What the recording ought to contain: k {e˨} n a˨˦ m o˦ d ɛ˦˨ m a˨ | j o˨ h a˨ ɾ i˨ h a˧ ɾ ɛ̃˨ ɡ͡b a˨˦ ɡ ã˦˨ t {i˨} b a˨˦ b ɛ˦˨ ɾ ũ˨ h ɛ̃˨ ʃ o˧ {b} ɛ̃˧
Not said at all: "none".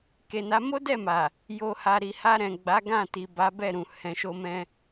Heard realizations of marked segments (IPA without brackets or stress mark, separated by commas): e˨, i˨, m